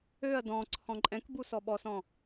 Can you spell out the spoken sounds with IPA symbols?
øɐ̯ dɔ̃ǀʰɔ̃ ǃʼɛ̃kbu sɔɓɔsɔ̃

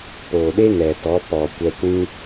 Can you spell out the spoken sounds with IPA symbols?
poː˨ɗe˦ŋɛ˨tɔ˨˦ pɔ˨ kʷɛ˧kʷĩ˦

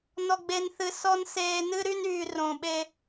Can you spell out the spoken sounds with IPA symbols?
nɔ˨ɡ͡be˨nθɨ˨ sɔ˦n seː˦ nɨ˦ɾy˦nyː˨ rõ˨ɓe˦

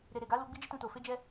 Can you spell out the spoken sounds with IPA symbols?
ɾe˨ɾe˨ɡa˨˦lu˧ ɡ͡bi˦d͡ʒi˦tũ˧to˨ fe˧d͡ʒɛ˧

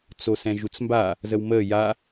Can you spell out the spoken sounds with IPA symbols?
t͡sosɛ̃ʒut͡smba | zəwməː ja

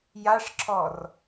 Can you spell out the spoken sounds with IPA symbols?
jaʂǁʰɔr

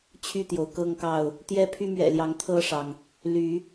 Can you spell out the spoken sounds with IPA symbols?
t͡ɕʰy˥˨t̪jo˩ʊ̯kɤ˥˨ŋkɑ˥˨ʊ̯ | t̪jɛ˦pʰy˦mɥɛ̰˨˩ljɑ˨˦ŋ t̪ʰɤ˥˨ʂɑ˩ŋ | ly˨˦

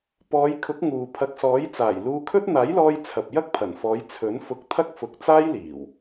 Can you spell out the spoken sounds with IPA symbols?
pɔː˨˧jkʰʊ˨˥k̚ ŋuː˨ pʰɐ˨˥k̚sɔː˨˥jt͡saː˨˩j luː˧kʰɵ˥t̚ n̪aː˨˥jlɔː˧j t͡sʰɐ˨p̚jɐ˥k̚pʰɐ˨˩nfɔː˨˧j t͡sʰɵ˨˥n fʊ˧k̚t̪ʰɐ˥k̚fʊ˨k̚t͡saː˥j liː˨˩w

